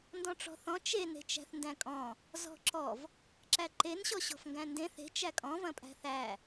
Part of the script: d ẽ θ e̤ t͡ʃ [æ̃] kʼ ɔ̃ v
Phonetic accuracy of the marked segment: incorrect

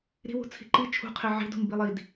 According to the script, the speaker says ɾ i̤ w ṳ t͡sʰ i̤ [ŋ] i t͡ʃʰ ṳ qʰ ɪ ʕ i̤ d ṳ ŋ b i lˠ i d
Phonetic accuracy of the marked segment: incorrect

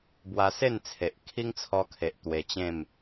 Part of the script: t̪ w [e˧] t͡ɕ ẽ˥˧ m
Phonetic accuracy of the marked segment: correct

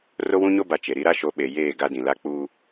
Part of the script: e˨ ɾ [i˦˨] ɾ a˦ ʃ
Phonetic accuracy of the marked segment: incorrect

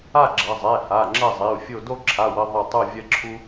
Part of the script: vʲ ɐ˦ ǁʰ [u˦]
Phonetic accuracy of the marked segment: correct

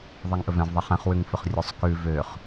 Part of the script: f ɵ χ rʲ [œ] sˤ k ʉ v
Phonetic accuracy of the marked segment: incorrect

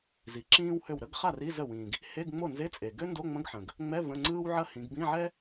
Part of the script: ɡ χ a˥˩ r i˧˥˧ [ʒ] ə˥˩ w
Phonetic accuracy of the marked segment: incorrect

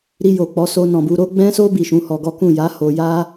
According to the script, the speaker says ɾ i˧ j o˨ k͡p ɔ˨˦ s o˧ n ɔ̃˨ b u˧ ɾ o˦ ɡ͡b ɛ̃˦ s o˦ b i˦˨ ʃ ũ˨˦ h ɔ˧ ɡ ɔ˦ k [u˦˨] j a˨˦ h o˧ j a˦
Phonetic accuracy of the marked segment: incorrect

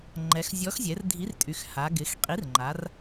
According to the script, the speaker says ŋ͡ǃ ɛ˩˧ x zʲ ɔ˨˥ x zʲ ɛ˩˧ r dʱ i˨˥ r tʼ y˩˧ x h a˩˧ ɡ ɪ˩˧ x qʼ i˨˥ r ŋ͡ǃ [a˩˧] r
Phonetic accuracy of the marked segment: correct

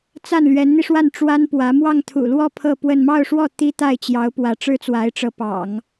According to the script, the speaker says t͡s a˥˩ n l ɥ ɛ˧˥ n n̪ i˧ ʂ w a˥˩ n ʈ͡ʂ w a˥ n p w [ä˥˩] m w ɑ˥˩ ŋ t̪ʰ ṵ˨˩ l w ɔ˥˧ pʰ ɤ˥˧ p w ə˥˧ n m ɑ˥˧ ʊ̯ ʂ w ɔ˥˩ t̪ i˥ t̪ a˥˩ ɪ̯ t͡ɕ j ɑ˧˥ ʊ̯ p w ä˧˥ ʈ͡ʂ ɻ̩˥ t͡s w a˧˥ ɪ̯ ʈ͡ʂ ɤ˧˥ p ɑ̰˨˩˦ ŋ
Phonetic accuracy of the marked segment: incorrect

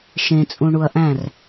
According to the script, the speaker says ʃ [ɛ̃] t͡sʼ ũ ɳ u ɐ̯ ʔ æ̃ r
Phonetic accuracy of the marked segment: incorrect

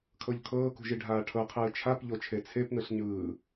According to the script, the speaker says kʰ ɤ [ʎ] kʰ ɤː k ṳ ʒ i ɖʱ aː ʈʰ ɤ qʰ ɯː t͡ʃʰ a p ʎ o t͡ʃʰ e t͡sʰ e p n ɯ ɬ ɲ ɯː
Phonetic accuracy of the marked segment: correct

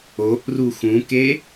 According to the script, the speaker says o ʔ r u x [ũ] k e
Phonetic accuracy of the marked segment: correct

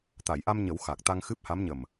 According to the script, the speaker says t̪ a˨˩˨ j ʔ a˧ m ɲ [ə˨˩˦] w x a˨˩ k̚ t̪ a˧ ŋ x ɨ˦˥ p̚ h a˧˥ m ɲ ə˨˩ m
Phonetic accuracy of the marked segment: correct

